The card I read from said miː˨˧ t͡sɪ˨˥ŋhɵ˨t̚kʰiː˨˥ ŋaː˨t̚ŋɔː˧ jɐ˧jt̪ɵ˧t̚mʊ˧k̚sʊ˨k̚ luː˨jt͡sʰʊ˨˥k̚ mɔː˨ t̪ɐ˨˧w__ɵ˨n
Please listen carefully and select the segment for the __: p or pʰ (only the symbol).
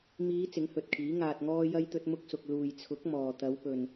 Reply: p